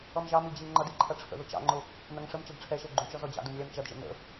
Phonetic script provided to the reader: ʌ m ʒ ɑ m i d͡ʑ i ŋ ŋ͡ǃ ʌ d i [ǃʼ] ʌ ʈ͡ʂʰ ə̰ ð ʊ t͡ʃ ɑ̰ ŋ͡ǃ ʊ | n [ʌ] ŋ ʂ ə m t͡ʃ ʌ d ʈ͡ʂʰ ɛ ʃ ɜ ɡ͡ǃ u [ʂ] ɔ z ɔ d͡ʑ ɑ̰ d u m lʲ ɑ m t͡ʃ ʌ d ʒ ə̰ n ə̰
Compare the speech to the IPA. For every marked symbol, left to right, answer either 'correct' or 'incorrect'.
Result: incorrect: ǃʰ, correct, incorrect: t͡ʃ

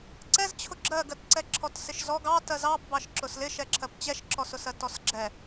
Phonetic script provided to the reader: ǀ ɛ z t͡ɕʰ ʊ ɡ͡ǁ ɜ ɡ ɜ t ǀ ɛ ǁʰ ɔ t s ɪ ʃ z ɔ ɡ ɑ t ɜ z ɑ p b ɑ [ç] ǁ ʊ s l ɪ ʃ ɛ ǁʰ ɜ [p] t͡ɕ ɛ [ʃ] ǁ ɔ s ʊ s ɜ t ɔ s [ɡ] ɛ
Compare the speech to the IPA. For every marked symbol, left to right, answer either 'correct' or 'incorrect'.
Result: incorrect: ʃ, correct, correct, incorrect: ɡ͡ǁ

